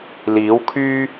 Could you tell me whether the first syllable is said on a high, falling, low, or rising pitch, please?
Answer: rising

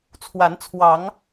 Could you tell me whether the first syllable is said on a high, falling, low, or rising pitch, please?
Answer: rising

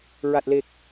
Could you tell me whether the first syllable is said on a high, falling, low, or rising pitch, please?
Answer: low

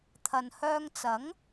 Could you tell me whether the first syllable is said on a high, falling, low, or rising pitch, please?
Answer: low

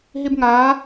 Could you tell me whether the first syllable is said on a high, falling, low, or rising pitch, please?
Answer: high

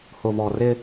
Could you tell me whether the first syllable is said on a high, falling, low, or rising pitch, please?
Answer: low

